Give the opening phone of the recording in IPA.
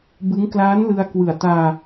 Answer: b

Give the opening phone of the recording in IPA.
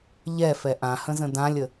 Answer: ʎ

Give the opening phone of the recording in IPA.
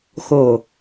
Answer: x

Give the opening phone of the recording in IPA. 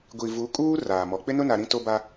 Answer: ɡʷ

